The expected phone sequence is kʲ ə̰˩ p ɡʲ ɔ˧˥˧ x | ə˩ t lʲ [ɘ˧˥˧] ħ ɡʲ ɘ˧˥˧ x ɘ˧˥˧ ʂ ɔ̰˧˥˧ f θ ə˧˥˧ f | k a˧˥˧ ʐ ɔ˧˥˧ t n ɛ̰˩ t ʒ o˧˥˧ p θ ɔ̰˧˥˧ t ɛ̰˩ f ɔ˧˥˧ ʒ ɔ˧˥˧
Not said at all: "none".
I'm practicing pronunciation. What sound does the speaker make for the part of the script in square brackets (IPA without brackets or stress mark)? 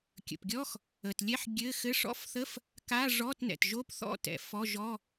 ɛ˧˥˧